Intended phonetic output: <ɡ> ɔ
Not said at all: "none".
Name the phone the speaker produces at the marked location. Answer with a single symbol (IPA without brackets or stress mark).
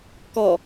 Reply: k